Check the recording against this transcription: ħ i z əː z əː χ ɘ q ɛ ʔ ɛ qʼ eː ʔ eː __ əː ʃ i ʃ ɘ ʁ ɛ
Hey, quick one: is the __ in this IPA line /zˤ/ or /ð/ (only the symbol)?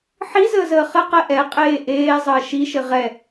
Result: zˤ